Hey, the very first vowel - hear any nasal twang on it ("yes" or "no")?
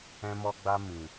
yes